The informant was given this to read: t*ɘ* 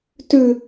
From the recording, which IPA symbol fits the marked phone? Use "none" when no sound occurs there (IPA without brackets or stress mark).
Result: ʉ